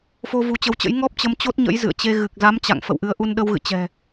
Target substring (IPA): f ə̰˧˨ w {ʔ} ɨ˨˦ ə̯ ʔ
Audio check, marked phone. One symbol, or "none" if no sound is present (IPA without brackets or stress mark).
ʔ